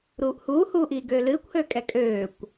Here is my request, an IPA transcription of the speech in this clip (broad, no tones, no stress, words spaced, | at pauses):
ɾuːʔhuːhuː ʔiːɡøːlɨːkʷhøː kʼɛkʼøːkʷ